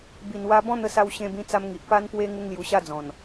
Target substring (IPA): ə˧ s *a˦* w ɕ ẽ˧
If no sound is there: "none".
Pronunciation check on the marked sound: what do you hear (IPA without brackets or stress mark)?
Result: a˧